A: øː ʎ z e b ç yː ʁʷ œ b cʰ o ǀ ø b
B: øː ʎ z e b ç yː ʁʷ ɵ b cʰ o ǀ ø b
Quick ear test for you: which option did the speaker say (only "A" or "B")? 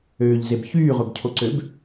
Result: A